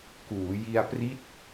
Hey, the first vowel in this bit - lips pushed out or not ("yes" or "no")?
yes